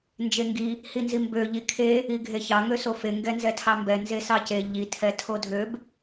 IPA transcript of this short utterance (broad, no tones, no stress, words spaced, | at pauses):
nd͡ʒeŋɡi | hinzimbø ʎikʰe | iɡʱeçɑ ŋøsofe ŋɡɛnzɛtʰɑmbɛ nzesɑce ʎi tʰɛtʰodʱøb